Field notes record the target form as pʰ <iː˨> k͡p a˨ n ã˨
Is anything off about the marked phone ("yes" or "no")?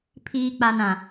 no